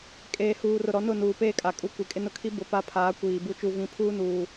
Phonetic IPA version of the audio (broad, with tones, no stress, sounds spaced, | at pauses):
kʼ eː˨ h uː˨ r ʊ˨ ɾ ɔ˨˦ n ʊ˦˨ n uː˨ p eː˦ kʼ a˨ kʼ u˦ kʷ i˨ kʼ ɪ˦ n ʊ˦ kʰ i˦ b ʊ˨ p a˦ pʰ aː˨˦ kʷ iː˨ b u˦ t͡ʃ u˨ v ĩ˨˦ pʰ uː˦ n uː˨